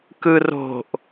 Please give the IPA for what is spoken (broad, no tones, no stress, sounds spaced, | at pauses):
k ɯ r o̤ ʔ